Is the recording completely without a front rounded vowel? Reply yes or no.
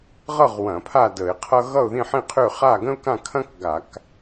no